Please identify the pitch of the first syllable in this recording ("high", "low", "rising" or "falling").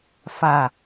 low